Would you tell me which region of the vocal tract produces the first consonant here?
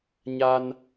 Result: palate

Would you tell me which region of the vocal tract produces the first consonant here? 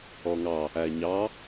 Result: velum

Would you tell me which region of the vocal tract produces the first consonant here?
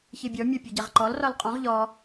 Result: palate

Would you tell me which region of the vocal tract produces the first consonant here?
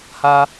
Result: throat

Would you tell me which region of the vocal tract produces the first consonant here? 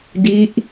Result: tongue tip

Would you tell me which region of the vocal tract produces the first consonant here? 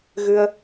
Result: velum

